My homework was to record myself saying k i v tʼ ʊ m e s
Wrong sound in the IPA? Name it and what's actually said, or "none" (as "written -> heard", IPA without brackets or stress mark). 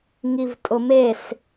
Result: k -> ŋ